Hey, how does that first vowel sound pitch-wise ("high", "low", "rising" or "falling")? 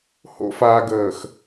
high